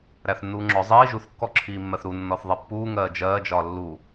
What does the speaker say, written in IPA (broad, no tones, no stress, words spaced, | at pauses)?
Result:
ɾæθnːuːŋ͡ǁɔ zˤiː ʒuθkːɔǁʰiːmːɜθ ɾu nːɔθðˤɛpːuː ŋɜːd͡ʒɜːd͡ʒɒː lːu